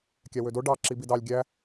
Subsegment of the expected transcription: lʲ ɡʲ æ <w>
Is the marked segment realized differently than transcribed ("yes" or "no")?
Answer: yes